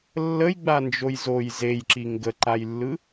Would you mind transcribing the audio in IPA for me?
lː ə j ɡ͡b a n d͡ʒ o j z o j z e j ǁ i ŋ ɡ ə ǃ a j lː ɯ

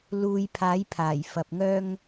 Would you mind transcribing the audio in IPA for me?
l uː˧ j pʰ aː˨˥ j pʰ aː˨˩ j f ɐ˨ p̚ ŋ œː˥ ŋ

